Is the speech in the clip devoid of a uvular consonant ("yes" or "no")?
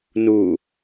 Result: yes